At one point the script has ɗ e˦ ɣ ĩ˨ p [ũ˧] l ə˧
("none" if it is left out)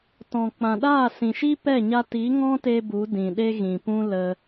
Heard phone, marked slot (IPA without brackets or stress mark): ũ˦